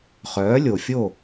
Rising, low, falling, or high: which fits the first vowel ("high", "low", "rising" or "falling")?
rising